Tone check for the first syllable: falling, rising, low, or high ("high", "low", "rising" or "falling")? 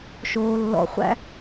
low